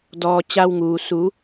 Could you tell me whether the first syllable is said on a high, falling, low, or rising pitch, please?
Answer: low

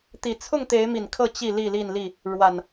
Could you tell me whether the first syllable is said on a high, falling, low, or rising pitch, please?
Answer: low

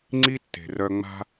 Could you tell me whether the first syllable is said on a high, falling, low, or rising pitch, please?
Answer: high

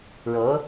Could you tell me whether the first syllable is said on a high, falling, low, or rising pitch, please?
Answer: rising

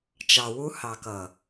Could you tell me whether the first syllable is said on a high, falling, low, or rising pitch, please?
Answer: low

